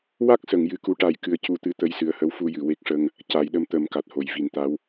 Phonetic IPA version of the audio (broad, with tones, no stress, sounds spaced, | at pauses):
w a˦˥ k̚ s ə˨˩˨ ŋ j ɨ˨˩˨ k u˧˥ ʈ a˨˩ j k ɨ˨˩˨ ə̯ c u˨˩˦ t̪ ɨ˧˥ t̪ ə˧˥ j s ɨ˨˩ ə̯ h ə˧˥ w f u˧ j ɨ˨˩˨ w e˦˥ k̚ ʂ ə˧ ŋ | c a˨˩˦ j ɗ ə˧ m t̪ ə˨˩˦ m k a˨˩ t̚ h o˨˩˨ j v i˨˩˦ n t̪ a˧˥ w